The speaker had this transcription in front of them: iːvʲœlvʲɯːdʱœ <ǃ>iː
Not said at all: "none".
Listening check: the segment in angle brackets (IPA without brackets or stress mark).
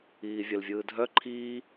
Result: ǃʰ